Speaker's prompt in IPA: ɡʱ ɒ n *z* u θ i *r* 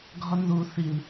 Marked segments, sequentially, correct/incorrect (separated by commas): incorrect, incorrect